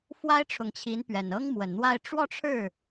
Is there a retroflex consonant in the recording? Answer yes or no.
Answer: yes